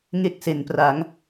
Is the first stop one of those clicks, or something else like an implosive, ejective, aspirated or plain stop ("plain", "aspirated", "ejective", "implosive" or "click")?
plain